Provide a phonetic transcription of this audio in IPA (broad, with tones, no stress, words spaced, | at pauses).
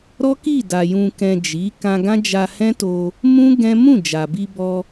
ɾɔ˦ki˦˨da˨ jũ˨kɛ̃˨ d͡ʒi˨˦ kã˧ɡã˦d͡ʒa˧ hɛ̃˦to˧ | mũ˦ ɡɛ̃˦ mũ˦˨ d͡ʒa˨bi˧bɔ˧